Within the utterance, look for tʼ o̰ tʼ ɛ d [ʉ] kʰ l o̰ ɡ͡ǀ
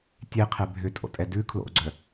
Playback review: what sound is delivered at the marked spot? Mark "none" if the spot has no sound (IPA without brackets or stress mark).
ʉ